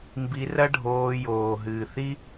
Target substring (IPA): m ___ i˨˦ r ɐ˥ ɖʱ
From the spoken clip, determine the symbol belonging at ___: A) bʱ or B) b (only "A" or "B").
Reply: B